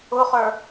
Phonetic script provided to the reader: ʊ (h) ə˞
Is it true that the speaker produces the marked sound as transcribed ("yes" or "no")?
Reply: no